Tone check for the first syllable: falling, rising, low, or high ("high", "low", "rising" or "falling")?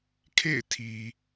falling